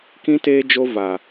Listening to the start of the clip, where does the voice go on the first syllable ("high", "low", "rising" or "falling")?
high